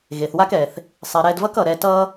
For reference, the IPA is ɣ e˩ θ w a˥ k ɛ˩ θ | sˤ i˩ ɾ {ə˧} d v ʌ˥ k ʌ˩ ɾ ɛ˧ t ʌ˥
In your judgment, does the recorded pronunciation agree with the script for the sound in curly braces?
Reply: no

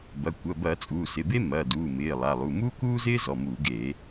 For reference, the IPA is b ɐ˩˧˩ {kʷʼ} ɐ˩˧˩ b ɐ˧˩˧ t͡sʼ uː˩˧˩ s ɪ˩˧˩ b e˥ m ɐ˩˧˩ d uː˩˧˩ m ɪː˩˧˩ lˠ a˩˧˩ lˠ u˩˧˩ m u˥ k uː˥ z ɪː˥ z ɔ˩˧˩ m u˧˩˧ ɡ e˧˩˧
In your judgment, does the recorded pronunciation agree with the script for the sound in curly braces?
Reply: no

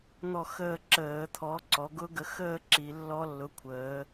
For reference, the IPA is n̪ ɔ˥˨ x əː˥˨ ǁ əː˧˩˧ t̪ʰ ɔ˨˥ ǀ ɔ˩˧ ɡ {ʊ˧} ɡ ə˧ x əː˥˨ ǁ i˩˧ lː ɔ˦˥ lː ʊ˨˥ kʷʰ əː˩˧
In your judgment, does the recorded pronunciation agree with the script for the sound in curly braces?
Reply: no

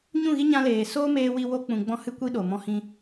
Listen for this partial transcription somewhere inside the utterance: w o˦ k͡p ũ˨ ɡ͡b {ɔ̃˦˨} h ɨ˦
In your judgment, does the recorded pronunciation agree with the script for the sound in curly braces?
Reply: no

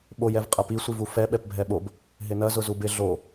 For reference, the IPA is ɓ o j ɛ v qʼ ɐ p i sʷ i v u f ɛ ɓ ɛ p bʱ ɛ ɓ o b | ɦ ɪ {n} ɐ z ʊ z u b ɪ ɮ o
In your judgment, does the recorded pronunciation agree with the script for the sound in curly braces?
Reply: yes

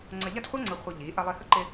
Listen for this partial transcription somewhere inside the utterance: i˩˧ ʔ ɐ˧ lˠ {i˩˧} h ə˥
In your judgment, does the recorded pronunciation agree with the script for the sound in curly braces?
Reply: no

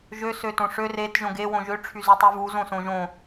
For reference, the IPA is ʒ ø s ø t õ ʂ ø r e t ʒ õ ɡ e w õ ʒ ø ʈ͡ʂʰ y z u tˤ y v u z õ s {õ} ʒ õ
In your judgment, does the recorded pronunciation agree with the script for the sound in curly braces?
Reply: yes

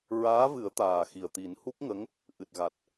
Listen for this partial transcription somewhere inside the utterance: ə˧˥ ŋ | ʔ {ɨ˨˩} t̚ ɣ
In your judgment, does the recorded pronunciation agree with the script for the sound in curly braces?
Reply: yes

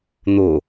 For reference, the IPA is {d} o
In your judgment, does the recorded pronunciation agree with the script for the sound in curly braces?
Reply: no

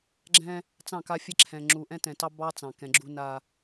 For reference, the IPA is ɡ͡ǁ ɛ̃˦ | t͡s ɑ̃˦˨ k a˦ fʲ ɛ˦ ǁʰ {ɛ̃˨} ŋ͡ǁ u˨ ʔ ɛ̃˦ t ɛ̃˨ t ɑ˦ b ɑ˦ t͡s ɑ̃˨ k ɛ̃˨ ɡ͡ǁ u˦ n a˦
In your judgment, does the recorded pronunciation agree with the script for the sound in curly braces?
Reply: yes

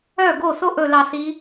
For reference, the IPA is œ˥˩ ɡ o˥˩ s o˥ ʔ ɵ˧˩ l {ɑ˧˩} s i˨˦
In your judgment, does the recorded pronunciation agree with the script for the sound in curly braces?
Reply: yes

